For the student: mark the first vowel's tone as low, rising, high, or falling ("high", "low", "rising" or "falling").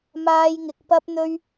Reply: high